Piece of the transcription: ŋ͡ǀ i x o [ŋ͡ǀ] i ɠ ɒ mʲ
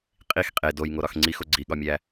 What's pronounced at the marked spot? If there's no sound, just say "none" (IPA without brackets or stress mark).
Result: ɡ͡ǀ